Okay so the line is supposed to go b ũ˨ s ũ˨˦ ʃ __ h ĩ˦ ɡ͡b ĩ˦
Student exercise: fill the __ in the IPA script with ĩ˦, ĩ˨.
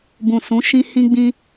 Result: ĩ˦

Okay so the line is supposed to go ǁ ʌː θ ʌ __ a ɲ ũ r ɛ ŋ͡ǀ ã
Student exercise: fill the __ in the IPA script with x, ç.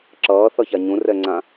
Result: ç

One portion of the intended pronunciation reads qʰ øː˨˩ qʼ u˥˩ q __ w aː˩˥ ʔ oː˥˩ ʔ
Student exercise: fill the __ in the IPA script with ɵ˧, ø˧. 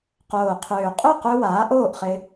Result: ø˧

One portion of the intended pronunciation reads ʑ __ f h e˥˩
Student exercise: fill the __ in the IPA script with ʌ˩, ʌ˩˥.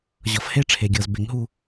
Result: ʌ˩˥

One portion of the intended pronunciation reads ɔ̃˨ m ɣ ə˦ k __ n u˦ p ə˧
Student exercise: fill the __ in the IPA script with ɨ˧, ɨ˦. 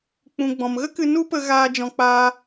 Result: ɨ˧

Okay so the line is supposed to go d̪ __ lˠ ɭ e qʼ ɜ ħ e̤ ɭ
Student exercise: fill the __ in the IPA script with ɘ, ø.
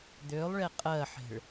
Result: ø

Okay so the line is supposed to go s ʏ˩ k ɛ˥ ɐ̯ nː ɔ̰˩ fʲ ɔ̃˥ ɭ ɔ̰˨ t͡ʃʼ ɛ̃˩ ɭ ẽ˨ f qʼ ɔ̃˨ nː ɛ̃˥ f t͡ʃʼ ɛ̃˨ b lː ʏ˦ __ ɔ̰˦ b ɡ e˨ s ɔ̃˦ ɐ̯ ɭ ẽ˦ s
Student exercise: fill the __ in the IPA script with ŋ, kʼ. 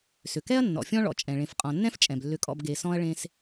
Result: kʼ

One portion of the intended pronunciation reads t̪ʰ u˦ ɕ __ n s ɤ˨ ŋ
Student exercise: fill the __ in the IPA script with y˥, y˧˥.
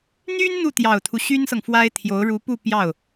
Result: y˥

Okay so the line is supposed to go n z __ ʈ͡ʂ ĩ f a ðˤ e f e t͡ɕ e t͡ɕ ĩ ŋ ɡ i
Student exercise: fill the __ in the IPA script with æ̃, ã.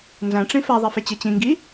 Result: æ̃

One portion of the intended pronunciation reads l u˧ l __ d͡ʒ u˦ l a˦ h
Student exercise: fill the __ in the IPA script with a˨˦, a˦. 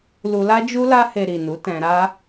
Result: a˦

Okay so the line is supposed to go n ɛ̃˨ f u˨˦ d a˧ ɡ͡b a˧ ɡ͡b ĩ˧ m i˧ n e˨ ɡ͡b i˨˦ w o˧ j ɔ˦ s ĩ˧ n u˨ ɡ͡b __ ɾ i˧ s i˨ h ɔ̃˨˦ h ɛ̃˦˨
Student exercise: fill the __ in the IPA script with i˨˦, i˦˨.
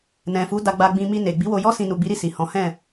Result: i˨˦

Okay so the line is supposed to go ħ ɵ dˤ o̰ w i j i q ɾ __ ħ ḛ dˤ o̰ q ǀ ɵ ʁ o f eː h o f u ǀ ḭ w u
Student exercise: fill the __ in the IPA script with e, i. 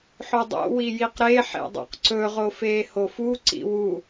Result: e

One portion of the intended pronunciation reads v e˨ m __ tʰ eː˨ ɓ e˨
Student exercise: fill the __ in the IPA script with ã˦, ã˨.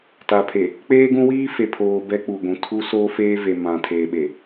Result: ã˨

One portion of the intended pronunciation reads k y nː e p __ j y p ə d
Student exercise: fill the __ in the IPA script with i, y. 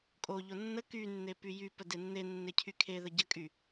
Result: y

